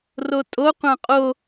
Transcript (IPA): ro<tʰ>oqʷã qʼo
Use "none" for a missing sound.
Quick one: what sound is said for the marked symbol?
tʼ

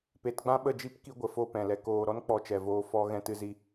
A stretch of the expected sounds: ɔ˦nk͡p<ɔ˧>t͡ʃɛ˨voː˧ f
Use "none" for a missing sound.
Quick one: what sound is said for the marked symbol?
ɔ˧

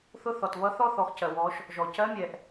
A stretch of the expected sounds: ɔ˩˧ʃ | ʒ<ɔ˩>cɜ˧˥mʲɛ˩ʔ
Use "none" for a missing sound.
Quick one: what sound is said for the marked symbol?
ɔ˩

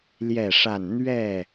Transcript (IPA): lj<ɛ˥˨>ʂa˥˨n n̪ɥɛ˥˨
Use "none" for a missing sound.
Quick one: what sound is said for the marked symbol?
ɛ˥˨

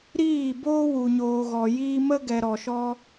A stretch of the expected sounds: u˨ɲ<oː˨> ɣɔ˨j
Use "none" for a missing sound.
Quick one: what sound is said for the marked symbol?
oː˨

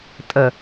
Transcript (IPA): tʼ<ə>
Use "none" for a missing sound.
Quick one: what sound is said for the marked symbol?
ə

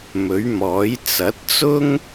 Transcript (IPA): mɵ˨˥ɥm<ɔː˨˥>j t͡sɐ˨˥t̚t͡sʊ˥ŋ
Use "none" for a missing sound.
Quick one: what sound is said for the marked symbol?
ɔː˨˥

